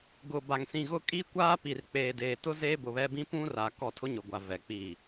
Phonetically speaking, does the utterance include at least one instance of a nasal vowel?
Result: yes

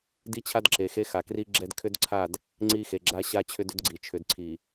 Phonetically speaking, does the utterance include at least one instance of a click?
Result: yes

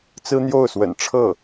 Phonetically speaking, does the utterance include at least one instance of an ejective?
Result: no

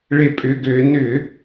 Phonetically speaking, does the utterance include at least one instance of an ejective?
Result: yes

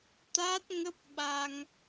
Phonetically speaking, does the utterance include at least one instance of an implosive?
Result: yes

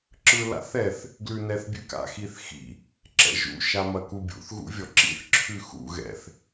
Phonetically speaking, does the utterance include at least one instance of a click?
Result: yes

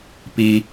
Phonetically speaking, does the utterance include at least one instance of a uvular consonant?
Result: no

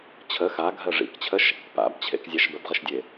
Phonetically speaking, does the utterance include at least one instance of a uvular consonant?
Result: yes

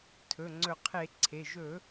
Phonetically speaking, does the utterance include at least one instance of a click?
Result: yes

